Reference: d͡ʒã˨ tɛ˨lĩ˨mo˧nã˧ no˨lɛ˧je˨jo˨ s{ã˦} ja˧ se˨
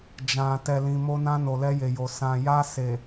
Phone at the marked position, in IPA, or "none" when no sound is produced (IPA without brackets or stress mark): ã˨